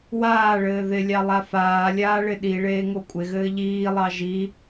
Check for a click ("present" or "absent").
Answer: absent